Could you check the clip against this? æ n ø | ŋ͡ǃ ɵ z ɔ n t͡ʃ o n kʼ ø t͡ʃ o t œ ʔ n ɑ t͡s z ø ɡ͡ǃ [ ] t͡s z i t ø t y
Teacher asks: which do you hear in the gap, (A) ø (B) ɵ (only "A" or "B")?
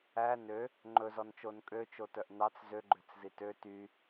A